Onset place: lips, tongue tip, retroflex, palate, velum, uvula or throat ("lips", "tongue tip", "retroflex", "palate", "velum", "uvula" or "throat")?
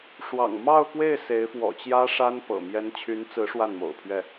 retroflex